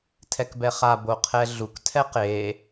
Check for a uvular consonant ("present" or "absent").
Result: present